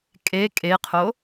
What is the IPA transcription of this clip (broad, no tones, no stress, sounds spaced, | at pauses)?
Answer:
kʼ e kʼ e qʰ o